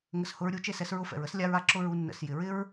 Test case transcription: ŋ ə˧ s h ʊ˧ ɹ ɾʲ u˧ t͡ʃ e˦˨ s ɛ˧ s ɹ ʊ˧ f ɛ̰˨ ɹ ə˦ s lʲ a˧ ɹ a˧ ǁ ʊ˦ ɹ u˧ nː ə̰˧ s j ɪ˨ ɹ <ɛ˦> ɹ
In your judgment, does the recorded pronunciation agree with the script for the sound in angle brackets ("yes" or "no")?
no